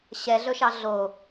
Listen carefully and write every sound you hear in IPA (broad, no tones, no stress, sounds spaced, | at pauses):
ɕ ɛ ɮ ɵ ʃ ɑ ɮ o